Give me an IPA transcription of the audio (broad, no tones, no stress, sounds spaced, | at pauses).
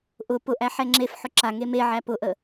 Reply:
ʔ ʊ p ʊ ʔ æ ħ ɛ ŋ͡ǁ e f ħ ʊ ǁ a ŋ e m e ʕ æ p ʊ ʔ ə